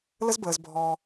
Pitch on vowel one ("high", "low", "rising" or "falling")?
high